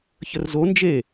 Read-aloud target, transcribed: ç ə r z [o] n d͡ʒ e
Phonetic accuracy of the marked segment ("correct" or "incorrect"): correct